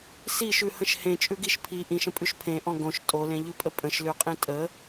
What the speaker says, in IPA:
siʃʉhə̃ʃ hẽt͡ʃʼʉɡiʃ pʰi ʔĩʃə̃pʼʉʃ pʰẽʔɔ̃ ɡõʃ tʼolẽʎʉpʼə pʼə̃ʃlʉqʼĩ tʼə

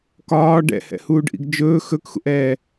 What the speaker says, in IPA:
kɒː ɖɛ̰hɛ̰huːɖʔḭɡ d͡ʒɵː xɵkxṵʔɛː

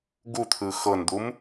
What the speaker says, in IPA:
ɡut̪ʰɯ xɤnd̪um

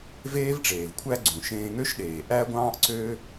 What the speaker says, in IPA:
veː˥vʈ͡ʂeː˩vkʷʰæ˥ɡ͡ǀũ˩ ʃẽː˧ŋø˥ʃɗeː˩ ʔæ˥ɡʷɑ̃ː˥ʔǀøː˥

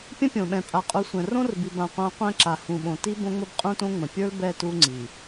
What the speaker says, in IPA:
pʲə̃˦pʲõ˨ɓɛ̃˨ pʼa˨qʼu˨˦sʷɛ̃˨ rõ˦rbi˨bã˨ qʷã˦qʷɛ̃˦ ǁa˨hũ˨ɓõ˨ ti˦bõ˦ ŋ͡mə˦bqʼũ˦tõ˦ŋ͡mə̃˨ pʲə˞˦lbɛ˦˨ tu˦ ŋ͡ǀi˨

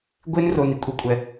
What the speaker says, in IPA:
ɡʷe˦nro˧ ni˨kʷʼi˦kʷʼɛ˧

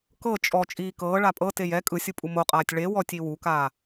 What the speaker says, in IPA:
kɤ t͡ʃʼɔ t͡ʃʼiːkɤː ɭapʼɤ tejɛ kʼɯsʲɯ pʼumoqʼaːtʲ ɭe wɔtʲi wukaː

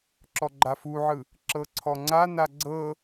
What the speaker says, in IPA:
ǁɔɡ͡ǃafuʕɯ | ǁɤǀʰɔŋ͡ǀana ɡ͡ǀɤ

